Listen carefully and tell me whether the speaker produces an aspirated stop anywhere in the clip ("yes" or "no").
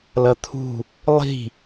yes